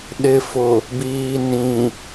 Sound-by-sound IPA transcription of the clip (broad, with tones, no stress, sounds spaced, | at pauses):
ɗ ɪ˨ f ʊ˨ | b iː˨ n ĩ˨